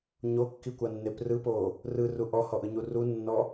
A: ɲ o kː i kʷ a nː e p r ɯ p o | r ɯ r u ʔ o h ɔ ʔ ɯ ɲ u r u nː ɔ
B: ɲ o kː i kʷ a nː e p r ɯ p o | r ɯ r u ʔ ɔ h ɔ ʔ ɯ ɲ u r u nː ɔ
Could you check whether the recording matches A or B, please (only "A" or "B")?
B